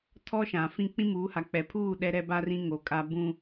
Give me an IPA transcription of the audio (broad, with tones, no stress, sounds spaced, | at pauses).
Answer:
tʰ ɔ˦ ʃ ã˨ f ĩ˦ k͡p ĩ˦ m uː˨˦ h a˨ k͡p ɛ˨ pʰ uː˦˨ ɗ ɛ˦ ɾ ɛ˦ b a˦ r ĩ˦ ŋ o˨ kʼ a˦ b ũ˦